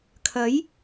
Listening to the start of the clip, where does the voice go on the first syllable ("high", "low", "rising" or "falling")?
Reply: rising